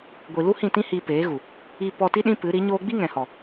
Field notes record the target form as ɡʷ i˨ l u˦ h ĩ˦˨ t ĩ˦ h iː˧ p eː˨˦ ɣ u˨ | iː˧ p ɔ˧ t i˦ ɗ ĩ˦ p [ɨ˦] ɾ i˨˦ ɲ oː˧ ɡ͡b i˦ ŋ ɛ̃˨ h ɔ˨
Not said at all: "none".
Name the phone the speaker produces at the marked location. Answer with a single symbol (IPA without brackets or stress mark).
ɨ˨˦